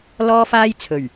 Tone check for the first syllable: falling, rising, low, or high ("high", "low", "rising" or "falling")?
high